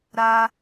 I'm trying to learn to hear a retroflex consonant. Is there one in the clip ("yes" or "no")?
no